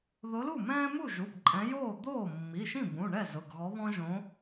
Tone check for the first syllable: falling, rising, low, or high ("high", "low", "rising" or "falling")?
rising